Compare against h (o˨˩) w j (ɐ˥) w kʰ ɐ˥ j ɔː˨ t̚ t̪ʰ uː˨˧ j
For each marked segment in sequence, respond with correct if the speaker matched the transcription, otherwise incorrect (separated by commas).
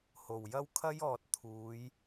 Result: correct, correct